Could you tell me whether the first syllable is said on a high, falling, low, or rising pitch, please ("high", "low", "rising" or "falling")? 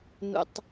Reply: low